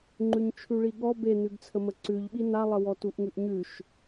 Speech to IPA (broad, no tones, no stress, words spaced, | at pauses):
ŋ͡ǃʉɲt͡ʃʰʉɭiɠɔ benʉɡt͡sʰə məǀʉʎɓi nalˠəwɔ tuʔŋʉʔɲʉʃ